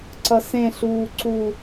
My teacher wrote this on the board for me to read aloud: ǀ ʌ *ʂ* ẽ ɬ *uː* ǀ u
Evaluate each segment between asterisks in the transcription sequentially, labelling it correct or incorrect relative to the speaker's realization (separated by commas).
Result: incorrect, correct